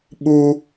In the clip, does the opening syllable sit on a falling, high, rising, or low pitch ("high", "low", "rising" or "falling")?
high